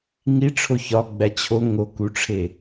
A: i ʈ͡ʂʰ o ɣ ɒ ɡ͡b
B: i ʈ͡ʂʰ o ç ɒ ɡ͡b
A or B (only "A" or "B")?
B